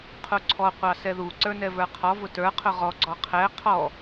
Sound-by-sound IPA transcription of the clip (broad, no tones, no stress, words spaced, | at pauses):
qʰuǀʰɔ qʷɑsɛðu ǀə˞nɛvə˞qʰɔ vʊtə˞ qʰʊʁɔ ɡ͡ǀɔqʰɛ qʰɔ